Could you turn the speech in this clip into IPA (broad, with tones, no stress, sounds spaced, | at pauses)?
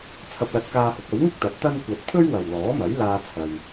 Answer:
t͡sʰ ɐ˧ p̚ l ɐ˧ t̚ k aː˧ h ʊ˨˥ k̚ ɐ˨˥ w ŋ ɪ˥ k̚ t̪ ɐ˨˥ t̚ t̪ ɐ˥ n kʷ ɐ˧ t̚ pʰ ɵ˥ ɥ w ɐ˨ w l ɔː˨˥ m ɐ˨˥ j l aː˧ t͡sʰ ɐ˧ j